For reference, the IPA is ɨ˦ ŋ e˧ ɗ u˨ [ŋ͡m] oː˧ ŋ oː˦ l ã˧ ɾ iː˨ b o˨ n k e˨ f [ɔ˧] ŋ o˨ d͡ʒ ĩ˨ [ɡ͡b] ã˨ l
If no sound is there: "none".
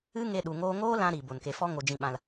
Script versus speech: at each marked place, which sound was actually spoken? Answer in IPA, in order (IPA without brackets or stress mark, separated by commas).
ŋ, ɔ˦, ɓ